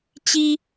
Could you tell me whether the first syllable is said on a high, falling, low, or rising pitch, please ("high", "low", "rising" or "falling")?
high